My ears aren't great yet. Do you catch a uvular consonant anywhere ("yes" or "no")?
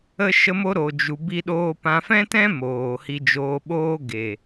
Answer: no